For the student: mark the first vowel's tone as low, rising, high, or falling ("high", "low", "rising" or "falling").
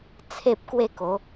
high